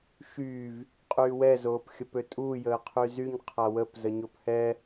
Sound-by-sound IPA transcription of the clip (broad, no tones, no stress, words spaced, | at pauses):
ʃyːv | qʼyːwɛ zoːpxʲəpøtʼuː jəːqʰyzyɲ qʰawəp zəɲophɛ